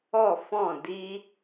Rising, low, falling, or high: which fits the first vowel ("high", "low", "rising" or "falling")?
falling